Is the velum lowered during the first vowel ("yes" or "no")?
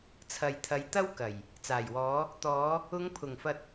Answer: no